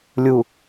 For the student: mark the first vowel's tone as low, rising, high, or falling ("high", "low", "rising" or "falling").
low